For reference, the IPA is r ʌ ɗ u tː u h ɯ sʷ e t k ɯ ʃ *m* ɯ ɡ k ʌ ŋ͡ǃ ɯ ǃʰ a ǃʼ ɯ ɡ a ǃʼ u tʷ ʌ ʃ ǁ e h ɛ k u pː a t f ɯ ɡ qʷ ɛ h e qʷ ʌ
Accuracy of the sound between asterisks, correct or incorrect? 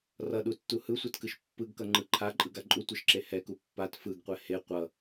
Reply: incorrect